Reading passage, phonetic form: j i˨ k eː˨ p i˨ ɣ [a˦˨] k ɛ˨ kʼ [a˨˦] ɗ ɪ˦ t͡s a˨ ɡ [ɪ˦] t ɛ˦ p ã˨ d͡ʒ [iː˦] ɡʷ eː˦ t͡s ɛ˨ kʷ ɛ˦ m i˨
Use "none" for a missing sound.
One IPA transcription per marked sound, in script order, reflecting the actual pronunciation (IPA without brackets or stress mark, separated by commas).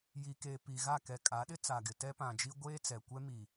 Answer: a˦˨, a˨˦, ɪ˨, i˦